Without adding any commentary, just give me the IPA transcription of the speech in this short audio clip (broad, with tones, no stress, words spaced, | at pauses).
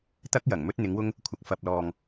t̪ɐ˥k̚jɐ˨˩ŋ mɵ˥t̚n̪ɪ˨˥ŋwʊ˥ŋ | kʷʰɐ˧k̚fɐ˧p̚lɔː˧ŋ